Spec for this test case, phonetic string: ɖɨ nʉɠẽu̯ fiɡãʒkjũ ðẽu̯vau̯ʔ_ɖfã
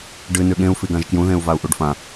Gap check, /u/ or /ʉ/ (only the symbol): u